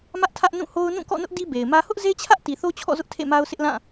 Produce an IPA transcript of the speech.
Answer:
m ä˦ ʔ tʰ ä˦ ʔ n ũ˦˨ h o˦ ʊ̯ n ũ˦˨ k ɔ̰˦˨ n ʊ˦ ʔ d i˦ b e˨ ɪ̯ m ä˦ h ʊ˦ ʔ z e˦ t͡ɕʰ ä˦ ʔ t i˨ θ o˦ t͡ɕʰ ɔ̰˦˨ z ʊ˦ ʔ tʰ ḛ˦˨ m a˦ ʊ̯ s ɪ˦ ʔ l ã˦˨

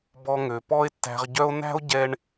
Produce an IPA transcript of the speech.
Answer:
b ɔ˧ ŋ ø˩ p ɔ˥ e̯ tː æ̤˧ ʁ ɟ œ˥ o̯ n æ̤˥ o̯ ɟ ɛ˥ ɳ

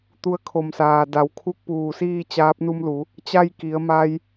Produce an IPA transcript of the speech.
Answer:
t̪ u˧ ə̯ kʰ o˧˩ m s aː˩ d a˩˧ w kʰ u˧˥ k̚ p uː˧˩ s iː˥˨ t͡ɕ aː˧˥ p̚ n u˧ m l u˩˧ | t͡ɕ a˥˨ j k i˩˧ ə̯ m a˧ j

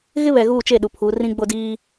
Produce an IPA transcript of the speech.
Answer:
ɣ ɪ˦ β ɛ˨ ɣ uː˦˨ t͡ʃ e˦˨ ɗ u˨ pʰ uː˨˦ r ĩ˦ ɡ͡b o˦ d iː˦

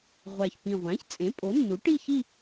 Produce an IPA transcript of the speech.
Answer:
ʁʷ æ˨˩ ç p ĩ˨˩ ʁʷ æ̃˩˥ ç t͡sʼ ẽ˩˥ pʼ o˩˥ nː u˩˥ ʈ i˥˧ ç i˥˧

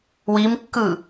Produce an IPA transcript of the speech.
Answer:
w i m kː ɯ

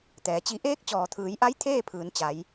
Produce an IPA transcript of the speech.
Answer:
t̪ ɛː˩˧ t͡ɕ i˧˥ ʔ eː˧˥ k̚ t͡ɕ ɔː˩ t̪ʰ ɯː˩˧ j ʔ a˧˥ j t̪ʰ eː˥˨ pʰ ɯː˩˧ n t͡ɕ a˩˧ j

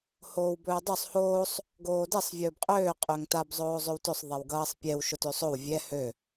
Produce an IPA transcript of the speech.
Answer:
h oː w b ɵː dˤ ø sˤ h oː sˤ | ɡ oː d ɛ sˤ vʲ ɵː b qʼ øː qʼ ø ŋ t a b zˤ oː zˤ ø w t ɵ sˤ ðˤ ɛ w ɡ ʌː sˤ pʲ ɛ w ʃ ʊ t ø sˤ o w vʲ ɛ h ø

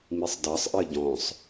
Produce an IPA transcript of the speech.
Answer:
m i sˤ d ɑ sˤ ʔ ɜ ɟ ɔ̃ sˤ

